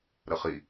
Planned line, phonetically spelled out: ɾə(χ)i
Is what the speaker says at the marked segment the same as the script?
yes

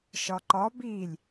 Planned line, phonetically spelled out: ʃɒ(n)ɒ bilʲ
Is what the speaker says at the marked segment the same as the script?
no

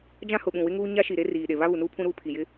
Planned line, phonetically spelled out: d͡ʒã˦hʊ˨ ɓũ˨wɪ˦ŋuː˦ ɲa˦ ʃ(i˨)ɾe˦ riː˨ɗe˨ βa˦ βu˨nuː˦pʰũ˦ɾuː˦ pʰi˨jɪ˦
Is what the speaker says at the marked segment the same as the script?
yes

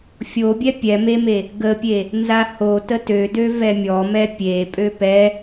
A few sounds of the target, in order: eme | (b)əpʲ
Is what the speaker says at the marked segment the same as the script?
no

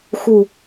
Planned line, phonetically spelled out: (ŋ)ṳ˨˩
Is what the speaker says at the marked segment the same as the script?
no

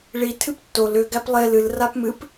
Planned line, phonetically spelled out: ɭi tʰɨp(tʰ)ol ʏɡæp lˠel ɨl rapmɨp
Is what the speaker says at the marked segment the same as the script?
no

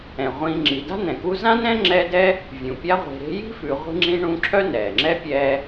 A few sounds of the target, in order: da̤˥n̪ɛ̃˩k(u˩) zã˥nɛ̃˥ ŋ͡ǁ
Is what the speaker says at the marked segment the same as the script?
no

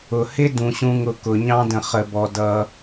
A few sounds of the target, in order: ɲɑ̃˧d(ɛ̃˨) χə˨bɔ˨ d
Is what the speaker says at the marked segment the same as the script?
no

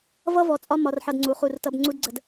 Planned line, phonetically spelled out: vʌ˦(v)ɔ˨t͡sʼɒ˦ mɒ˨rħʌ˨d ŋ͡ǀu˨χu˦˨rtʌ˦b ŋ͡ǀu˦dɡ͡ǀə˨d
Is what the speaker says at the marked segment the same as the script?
yes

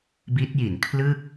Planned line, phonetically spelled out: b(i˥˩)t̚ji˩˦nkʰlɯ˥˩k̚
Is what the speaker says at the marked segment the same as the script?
no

